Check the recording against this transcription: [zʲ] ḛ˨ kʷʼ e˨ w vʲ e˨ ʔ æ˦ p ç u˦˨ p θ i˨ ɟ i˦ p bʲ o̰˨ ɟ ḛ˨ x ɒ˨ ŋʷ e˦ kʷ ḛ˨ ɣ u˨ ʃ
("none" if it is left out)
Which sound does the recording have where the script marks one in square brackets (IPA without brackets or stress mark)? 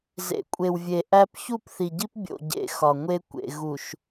z